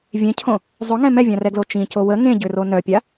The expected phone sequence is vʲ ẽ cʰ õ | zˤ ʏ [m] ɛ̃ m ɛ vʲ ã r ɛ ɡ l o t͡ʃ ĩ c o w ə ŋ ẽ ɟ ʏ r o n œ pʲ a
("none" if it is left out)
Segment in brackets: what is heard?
ŋ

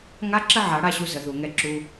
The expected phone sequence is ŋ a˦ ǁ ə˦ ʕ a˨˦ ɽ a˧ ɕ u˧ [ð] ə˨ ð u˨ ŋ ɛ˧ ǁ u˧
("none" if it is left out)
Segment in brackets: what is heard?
z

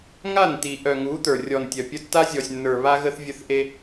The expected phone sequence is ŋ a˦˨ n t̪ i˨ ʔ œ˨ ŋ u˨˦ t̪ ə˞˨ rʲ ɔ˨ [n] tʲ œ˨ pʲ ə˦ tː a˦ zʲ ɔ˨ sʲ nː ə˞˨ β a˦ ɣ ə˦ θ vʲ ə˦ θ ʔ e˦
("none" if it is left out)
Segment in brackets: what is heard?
n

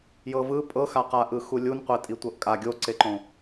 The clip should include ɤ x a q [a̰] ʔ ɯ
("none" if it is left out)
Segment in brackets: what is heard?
a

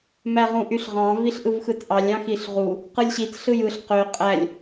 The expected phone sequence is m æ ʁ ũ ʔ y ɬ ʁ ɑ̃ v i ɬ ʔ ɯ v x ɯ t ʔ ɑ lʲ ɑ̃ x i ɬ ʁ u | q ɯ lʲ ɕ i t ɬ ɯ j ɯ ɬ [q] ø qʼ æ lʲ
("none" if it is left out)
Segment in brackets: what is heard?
q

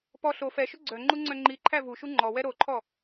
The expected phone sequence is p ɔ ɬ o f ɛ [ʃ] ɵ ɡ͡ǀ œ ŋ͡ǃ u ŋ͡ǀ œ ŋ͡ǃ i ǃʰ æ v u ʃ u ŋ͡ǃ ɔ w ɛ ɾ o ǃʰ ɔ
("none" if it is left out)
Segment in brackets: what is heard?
ʃ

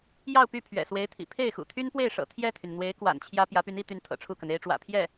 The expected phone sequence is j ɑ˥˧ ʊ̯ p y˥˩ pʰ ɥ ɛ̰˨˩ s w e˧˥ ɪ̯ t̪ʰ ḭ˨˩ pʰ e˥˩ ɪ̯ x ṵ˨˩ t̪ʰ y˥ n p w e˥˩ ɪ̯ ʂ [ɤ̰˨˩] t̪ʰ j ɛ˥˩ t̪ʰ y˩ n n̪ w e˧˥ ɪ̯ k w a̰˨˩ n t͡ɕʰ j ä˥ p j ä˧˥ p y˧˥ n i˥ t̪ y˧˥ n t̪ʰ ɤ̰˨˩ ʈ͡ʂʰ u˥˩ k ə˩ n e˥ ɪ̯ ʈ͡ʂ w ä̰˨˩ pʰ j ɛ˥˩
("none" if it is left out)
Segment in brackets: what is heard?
ɤ̰˨˩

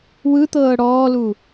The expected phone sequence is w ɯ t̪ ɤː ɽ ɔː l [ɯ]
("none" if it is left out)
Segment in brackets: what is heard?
u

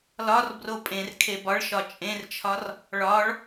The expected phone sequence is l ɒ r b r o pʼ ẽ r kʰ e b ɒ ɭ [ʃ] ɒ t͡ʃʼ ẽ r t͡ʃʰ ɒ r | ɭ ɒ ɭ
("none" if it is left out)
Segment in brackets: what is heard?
ʃ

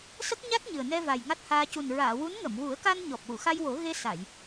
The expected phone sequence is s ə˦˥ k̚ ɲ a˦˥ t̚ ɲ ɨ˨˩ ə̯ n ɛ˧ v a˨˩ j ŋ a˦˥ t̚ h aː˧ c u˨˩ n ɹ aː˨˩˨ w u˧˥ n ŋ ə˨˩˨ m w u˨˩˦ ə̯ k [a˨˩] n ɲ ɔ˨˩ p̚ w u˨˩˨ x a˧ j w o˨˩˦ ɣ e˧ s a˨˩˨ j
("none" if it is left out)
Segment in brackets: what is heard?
a˧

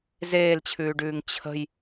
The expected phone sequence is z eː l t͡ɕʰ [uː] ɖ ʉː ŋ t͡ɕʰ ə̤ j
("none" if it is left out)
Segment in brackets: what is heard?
ʉː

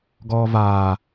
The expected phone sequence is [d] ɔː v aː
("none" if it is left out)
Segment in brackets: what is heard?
ɡ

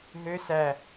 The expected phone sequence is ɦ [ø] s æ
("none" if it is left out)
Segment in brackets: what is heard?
ø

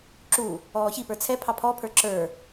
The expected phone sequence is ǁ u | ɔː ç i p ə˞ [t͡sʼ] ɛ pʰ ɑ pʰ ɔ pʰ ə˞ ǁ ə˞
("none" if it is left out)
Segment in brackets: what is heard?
t͡sʰ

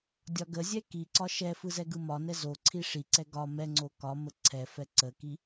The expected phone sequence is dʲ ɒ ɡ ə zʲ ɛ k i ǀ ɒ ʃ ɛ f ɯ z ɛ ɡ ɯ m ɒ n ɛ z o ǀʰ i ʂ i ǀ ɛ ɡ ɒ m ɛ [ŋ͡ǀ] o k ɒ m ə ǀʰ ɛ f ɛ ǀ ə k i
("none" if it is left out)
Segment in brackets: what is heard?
ŋ͡ǀ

